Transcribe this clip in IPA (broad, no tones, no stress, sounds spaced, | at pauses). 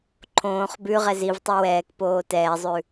ǃʰ õː χ b ʉ ʁ ɛ z i v tˤ e w ɛː k p oː t ɛː zˤ ʉ